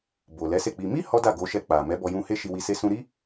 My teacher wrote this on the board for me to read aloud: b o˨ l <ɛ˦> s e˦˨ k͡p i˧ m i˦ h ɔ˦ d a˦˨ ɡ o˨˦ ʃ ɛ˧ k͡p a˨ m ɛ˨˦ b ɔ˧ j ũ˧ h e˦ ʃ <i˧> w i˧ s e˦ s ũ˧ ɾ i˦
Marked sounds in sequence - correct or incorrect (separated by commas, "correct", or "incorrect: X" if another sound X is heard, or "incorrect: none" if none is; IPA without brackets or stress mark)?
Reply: incorrect: ɛ˨˦, correct